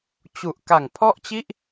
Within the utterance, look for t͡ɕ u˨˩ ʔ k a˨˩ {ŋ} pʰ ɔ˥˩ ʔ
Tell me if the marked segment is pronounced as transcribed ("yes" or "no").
yes